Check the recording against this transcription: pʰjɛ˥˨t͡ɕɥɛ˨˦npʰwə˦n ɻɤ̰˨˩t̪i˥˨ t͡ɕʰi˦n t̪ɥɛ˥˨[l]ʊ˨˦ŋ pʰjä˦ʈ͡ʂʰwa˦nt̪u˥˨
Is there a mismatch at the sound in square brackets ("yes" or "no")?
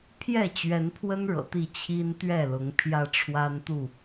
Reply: no